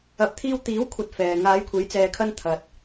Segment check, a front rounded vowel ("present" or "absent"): absent